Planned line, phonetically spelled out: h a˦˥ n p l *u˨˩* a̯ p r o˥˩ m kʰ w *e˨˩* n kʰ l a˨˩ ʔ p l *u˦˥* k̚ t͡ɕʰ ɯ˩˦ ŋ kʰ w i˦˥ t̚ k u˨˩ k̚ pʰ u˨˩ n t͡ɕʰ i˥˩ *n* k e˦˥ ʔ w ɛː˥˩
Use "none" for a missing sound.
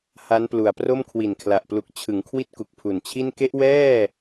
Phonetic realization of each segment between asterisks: u˨˩, i˨˩, u˨˩, n

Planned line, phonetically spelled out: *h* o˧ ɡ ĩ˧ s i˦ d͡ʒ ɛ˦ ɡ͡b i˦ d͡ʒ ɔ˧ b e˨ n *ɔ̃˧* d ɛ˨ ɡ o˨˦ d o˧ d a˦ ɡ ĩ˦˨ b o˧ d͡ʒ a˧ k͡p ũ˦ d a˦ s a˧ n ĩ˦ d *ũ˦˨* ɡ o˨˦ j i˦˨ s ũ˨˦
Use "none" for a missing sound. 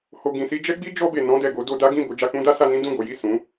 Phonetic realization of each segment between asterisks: h, ɔ̃˧, ũ˦˨

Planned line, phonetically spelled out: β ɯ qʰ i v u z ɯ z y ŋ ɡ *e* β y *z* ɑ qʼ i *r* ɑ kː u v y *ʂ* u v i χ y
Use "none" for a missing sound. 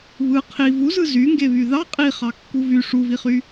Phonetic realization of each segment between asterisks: e, ð, χ, ʂ

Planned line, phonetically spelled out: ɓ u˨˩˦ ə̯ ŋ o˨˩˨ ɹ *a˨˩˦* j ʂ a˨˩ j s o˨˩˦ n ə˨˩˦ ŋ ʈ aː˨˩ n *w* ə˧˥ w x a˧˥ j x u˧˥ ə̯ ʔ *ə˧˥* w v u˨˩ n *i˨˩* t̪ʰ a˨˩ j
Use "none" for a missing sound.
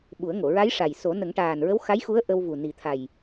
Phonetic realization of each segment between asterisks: a˧˥, ɹ, ə˧, i˨˩

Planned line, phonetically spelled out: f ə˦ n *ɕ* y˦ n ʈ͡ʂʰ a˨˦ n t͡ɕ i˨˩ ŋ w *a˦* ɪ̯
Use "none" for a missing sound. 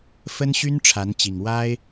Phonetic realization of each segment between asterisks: ɕ, a˦

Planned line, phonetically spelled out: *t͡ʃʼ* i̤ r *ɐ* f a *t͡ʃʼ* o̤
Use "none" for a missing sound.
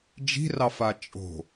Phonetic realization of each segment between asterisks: d͡ʒ, ɑ, t͡ʃʼ

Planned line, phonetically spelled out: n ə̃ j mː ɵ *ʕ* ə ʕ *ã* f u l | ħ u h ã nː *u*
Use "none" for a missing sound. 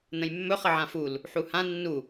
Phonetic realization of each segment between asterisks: χ, ã, u

